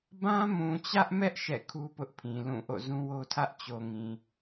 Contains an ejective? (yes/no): no